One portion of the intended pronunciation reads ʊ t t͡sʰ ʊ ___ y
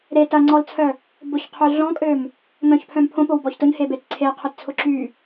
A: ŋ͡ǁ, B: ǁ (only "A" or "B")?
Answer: B